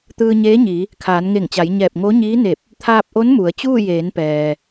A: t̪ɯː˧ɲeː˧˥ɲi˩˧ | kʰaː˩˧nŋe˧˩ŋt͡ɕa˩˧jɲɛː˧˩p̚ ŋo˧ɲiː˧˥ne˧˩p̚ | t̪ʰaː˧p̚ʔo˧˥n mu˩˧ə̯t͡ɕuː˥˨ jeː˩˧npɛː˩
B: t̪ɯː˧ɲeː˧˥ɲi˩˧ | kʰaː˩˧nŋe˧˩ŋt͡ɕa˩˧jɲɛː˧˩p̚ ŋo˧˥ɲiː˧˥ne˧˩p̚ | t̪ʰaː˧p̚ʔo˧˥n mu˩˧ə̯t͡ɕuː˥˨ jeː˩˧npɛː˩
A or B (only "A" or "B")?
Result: B